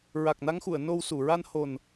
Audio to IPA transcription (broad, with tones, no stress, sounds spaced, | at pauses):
ɹ a˨˩ k̚ n a˧ ŋ x u˨˩˨ ə̯ n o˧ w s u˨˩˨ ɹ a˧ n h o˨˩ n